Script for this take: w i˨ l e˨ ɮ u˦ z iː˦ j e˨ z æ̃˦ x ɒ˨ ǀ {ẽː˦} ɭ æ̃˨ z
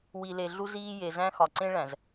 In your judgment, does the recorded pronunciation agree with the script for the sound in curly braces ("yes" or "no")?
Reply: no